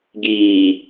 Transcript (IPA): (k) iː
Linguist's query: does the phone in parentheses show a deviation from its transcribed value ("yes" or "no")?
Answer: yes